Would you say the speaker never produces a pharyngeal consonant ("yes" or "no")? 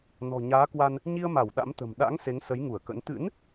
yes